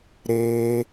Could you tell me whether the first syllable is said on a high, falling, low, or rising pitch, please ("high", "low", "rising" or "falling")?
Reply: high